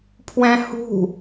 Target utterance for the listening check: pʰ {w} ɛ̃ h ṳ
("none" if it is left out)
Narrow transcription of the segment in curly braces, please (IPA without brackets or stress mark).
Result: w